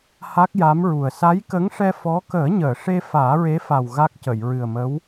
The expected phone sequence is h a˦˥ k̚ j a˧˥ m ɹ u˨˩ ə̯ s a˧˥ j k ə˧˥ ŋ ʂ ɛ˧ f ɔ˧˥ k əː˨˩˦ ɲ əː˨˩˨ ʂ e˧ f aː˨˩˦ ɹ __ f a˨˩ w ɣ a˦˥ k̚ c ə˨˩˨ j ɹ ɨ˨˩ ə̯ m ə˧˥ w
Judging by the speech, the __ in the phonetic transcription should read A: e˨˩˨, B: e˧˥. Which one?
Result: B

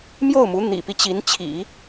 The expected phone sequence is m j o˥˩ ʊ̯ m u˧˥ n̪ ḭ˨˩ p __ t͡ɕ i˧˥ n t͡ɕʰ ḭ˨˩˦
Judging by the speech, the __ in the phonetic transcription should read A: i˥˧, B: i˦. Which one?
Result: B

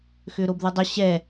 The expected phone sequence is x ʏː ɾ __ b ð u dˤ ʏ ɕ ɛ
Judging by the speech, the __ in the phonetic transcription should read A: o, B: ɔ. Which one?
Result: A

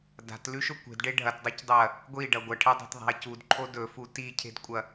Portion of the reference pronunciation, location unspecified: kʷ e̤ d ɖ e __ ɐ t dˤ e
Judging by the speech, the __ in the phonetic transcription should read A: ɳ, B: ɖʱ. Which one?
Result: B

